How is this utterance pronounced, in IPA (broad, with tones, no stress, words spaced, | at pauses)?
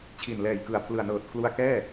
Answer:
t͡ɕʰi˨˩nlɛː˨˩jkɯ˨˩a̯ pʰlɯ˨˩a̯nɤː˨˩t̚kʰlu˧a̯ kɛː˥˩